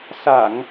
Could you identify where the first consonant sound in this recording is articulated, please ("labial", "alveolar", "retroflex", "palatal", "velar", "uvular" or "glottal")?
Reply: alveolar